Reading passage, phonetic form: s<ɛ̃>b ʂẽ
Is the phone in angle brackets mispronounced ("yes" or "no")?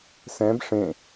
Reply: no